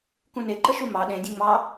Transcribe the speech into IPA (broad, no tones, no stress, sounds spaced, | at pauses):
k ũ n e ǃ ə ʃ u m ɑ ɗ ẽ dʲ ẽ ŋ͡m ɑ